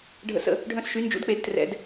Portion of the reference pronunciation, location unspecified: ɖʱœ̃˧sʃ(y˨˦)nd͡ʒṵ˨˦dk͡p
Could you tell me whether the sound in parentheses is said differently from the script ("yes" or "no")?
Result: no